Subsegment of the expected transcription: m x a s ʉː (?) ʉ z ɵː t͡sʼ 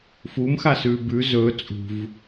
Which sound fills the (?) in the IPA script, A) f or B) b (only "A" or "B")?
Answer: B